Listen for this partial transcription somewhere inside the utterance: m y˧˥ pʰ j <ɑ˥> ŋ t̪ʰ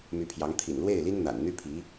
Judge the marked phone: incorrect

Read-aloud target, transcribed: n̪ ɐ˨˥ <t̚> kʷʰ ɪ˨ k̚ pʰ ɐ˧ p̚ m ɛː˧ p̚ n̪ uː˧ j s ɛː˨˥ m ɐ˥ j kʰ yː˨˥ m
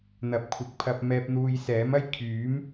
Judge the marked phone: incorrect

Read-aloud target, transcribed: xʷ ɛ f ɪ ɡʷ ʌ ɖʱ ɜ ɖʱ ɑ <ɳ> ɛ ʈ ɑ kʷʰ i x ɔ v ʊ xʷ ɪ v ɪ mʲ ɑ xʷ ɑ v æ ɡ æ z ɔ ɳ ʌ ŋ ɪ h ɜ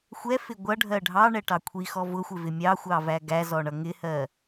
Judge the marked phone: correct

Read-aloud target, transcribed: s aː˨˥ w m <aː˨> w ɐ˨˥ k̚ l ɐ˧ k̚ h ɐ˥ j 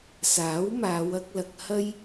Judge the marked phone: incorrect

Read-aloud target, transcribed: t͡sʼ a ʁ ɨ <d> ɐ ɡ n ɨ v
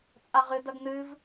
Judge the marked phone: correct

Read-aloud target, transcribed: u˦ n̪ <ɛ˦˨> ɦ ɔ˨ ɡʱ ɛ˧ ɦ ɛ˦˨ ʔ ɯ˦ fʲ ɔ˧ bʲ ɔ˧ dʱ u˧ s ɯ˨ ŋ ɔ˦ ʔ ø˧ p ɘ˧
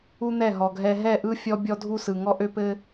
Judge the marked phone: correct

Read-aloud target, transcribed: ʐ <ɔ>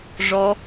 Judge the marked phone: correct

